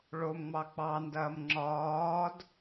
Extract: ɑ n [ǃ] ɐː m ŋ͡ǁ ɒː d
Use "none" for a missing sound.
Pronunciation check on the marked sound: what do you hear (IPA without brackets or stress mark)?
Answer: d